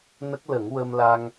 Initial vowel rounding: unrounded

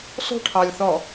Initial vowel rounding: rounded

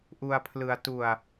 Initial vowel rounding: rounded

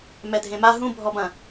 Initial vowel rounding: unrounded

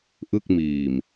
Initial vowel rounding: unrounded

